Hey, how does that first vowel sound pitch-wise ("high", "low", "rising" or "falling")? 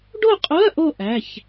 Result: falling